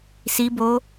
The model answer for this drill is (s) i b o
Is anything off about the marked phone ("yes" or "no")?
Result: no